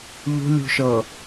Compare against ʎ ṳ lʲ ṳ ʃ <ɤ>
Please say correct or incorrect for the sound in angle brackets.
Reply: correct